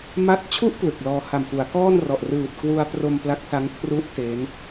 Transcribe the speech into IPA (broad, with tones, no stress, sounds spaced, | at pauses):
m a˦˥ t̚ t͡ɕʰ u˥˩ ʔ p l ɯ˨˩ k̚ l ɔː˧ h a˨˩ m f u˩˦ a̯ k ɔː˥˩ n r ɔ˨˩ ʔ r ɯː˨˩ t̚ k w u˧ a̯ p r o˧ m p l a˦˥ k̚ s a˦˥ ŋ kʰ r u˦˥ ʔ t e˦˥ n